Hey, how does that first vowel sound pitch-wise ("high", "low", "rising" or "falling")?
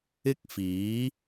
high